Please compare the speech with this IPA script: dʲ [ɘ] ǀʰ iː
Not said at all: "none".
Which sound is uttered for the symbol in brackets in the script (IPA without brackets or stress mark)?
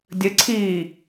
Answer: ɘ